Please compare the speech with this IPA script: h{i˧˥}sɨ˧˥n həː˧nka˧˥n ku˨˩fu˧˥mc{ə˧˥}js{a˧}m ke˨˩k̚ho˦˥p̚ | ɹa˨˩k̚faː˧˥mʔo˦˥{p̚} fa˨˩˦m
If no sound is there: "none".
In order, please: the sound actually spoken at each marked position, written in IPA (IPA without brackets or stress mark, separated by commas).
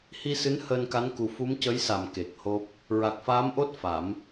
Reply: i˧, ə˧˥, a˨˩˨, t̚